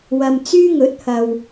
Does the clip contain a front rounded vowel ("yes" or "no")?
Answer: yes